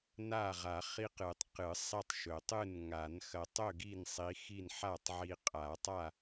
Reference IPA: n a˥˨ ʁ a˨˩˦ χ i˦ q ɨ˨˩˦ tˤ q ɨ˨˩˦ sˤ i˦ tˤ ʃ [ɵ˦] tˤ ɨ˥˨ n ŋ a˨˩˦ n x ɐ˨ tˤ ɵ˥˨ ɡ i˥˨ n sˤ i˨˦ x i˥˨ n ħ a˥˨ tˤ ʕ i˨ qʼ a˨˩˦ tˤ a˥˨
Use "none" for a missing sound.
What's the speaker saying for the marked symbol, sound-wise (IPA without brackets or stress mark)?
ɵ˨˩˦